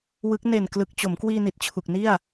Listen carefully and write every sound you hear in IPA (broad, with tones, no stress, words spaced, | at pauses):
wɯ˦˥k̚ ne˨˩n klɯ˨˩k̚t͡ɕo˩˦mkwiː˧ ni˨˩t̚t͡ɕʰu˨˩k̚ni˥˩a̯